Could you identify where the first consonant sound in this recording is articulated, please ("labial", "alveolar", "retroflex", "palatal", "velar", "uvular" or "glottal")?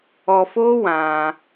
labial